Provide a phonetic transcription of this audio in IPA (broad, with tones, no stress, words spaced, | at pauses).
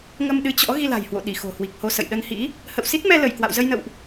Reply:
ŋə˧mɗɨ˨˦t͡ɕɔ̰˧˥ ɣi˧la̤˨˩jhwo̰˧˨ɗi˧˩ xo̤˨˩hwi˨˩k̚ho˧sə̰˧˨j ɗə˧nhḭ˧˥ | hə̰˧˨wsi˦˥t̚mɛ˧lə˧˩j kwa̰˧˨wzə˧jnə̰˧˨wʔ